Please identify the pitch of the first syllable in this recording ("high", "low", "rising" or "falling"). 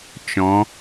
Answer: rising